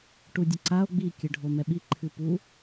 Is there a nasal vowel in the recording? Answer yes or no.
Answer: no